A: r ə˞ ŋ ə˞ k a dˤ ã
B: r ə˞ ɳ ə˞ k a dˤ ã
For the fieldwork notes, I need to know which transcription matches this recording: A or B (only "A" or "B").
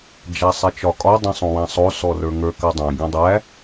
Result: A